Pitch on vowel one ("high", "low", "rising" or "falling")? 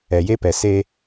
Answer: low